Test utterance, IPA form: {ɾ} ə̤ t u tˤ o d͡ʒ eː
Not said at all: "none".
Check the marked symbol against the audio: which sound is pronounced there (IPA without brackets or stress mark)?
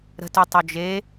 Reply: ɾ